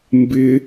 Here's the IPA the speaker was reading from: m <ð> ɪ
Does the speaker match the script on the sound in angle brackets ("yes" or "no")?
no